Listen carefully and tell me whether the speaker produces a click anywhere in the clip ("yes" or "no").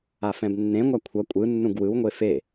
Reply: no